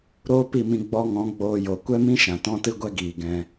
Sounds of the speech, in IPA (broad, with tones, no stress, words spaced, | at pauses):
ɾoː˦pi˦˨mĩ˧ ɡ͡bɔ˧ŋɔ̃˨˦ ɡ͡boː˧jo˨ kʷɛ˦mĩ˦ʃã˨ tɔ̃˦tɨ˦ɡʷɛ˦ ɡiː˨ɡɛ̃˧